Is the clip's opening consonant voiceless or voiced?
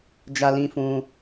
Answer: voiced